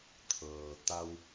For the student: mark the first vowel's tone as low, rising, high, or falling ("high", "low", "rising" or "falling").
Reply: low